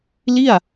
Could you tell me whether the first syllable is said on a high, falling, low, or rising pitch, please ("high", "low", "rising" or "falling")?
falling